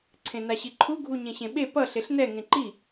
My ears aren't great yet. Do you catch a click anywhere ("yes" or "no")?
yes